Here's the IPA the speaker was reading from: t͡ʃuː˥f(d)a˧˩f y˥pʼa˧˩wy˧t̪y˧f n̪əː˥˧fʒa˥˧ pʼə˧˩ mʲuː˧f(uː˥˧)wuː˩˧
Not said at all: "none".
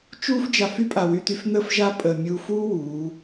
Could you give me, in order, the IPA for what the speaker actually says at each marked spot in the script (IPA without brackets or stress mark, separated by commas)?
d͡ʒ, uː˥